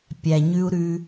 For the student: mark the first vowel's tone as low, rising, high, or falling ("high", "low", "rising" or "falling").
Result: low